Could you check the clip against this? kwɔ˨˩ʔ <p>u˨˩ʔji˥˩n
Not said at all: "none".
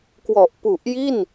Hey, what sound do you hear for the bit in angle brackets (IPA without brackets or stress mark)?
p